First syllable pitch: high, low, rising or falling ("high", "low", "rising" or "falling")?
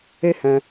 high